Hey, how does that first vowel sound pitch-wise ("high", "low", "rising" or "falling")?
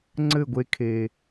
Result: falling